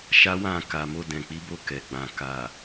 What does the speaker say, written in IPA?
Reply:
ʃ a˦ w ã˦˨ k a˨ m o˧ d ɛ̃˨ k͡p i˨˦ b o˧ k ɛ˨ ɡ͡b ã˨ k a˨

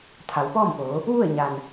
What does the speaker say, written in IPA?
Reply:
t̪ʰ a˩˧ w p ɔː˥˨ m p oː˩˧ | ʋ u˥˨ ə̯ ɲ a˩ n

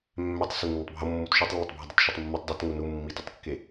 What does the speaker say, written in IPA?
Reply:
mː ɛ tˤ s e nː i tˤ bʱ o mː u t ʃ u tˤ lː ʌ tˤ bʱ ɛ dˤ o t ʃ ɛ tˤ mː u tˤ dˤ u t ŋ u n u mː i t i tˤ kː e

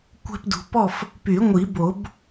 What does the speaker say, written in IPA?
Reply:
kʷ ɛ̤˦ p d ṳ˨ p ɔ˥˨ f | p y˨˩˦ ŋʷ i˨˩˦ b o˨˩˦ b

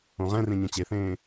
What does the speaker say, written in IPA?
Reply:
õ ʁ ɛ̃ r ẽ ɲ ɛ̃ t͡ɕ e θ ẽː

